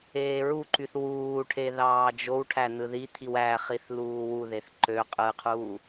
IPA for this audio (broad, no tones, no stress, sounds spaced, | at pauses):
eː ɹ u ǃ y θ w uː ʈʰ e ð ɑː d͡ʒ o w ʈʰ æ n ɯ ð i t̪ʰ i w æ χ i θ l uː w u ð e θ ǃ ø qʼ ɯ qʰ uː